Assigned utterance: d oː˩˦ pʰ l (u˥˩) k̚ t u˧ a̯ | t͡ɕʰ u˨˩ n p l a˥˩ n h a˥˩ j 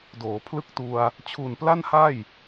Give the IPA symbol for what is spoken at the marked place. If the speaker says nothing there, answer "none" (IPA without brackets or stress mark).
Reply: ɯ˥˩